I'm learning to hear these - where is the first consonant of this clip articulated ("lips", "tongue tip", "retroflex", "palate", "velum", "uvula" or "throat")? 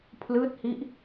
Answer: lips